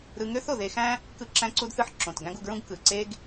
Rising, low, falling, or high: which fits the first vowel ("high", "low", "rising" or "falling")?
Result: high